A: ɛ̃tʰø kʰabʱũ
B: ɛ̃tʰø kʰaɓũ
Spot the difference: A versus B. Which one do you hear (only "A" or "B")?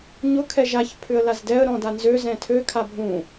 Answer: A